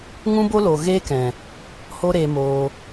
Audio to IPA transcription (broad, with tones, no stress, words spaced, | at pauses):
ŋũ˦bo˦ lo˨ɣeː˦kɛ̃˨ | ho˦ɾeː˧moː˧